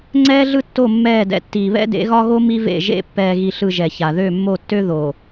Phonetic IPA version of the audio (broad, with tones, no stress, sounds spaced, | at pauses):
ŋ͡ǀ ɛː˦ ɮ ɯ˦ tː o˦˨ mː ɛː˦˨ d ɛ̰˨ tː iː˨ β ɛ̰˦ d ḛ˨˦ ɣ ɒ˦ ɣ o˦ m i˦ v ḛ˦˨ ʒ ḛ˦˨ pː ɛː˨ ɣ i˨ ɬ ɯ˨ ʒ ɛ˨ ç a˨ ð ø˦˨ mː o˦˨ tː ø˦ ð o˨